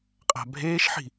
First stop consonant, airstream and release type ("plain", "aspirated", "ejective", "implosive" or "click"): ejective